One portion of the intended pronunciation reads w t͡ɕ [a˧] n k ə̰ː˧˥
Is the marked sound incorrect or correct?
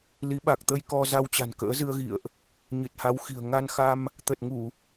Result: incorrect: a̤˨˩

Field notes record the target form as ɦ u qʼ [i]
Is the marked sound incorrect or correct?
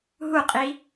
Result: correct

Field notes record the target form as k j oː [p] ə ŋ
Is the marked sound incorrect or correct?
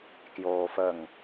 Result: incorrect: f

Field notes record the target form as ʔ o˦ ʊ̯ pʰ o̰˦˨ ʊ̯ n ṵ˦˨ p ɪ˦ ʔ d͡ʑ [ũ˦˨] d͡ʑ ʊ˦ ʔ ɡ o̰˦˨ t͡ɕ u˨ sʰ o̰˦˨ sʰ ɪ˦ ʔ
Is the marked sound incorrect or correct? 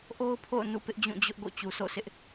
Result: correct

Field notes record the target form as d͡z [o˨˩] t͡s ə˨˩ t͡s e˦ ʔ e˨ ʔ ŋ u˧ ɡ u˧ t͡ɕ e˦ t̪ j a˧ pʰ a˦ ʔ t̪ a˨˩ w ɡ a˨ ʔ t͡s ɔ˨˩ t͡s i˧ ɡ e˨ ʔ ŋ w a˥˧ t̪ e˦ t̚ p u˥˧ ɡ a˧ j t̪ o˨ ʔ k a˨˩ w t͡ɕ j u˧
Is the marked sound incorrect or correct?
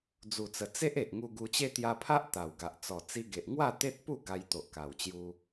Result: incorrect: u˨˩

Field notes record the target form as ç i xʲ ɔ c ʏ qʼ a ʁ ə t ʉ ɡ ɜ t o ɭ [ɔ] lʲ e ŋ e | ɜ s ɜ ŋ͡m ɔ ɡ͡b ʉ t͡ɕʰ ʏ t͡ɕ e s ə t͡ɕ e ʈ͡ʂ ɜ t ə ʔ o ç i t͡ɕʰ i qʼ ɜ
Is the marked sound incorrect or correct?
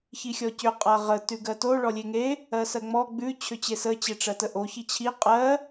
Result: correct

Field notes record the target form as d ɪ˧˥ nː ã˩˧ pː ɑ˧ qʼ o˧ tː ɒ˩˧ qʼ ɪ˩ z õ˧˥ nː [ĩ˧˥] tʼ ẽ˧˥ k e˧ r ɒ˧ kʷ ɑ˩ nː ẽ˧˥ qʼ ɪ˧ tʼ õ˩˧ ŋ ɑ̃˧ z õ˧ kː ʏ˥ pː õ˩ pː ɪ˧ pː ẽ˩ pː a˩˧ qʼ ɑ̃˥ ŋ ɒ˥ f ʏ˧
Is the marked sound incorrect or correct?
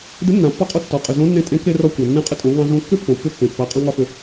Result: incorrect: ẽ˧˥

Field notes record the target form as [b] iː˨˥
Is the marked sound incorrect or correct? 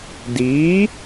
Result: incorrect: d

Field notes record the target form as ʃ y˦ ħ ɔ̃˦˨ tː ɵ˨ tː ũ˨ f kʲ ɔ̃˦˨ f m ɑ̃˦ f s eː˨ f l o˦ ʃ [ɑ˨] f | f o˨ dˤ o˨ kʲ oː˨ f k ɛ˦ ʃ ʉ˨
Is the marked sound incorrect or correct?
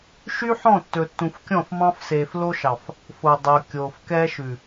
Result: correct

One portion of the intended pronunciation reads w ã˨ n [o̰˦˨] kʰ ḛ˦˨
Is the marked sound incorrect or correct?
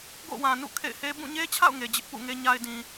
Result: incorrect: ṵ˦˨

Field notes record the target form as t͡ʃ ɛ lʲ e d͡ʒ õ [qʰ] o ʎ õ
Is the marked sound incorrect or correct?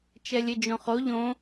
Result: incorrect: χ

